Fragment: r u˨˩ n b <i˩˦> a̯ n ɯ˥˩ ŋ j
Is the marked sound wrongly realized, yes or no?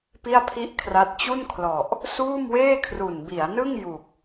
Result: no